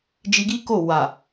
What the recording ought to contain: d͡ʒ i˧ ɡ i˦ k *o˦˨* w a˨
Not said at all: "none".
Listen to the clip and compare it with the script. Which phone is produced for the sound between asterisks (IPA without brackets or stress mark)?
o˦˨